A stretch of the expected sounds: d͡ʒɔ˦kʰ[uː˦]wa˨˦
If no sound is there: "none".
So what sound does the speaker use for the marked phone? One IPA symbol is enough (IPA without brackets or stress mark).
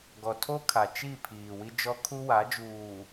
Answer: u˦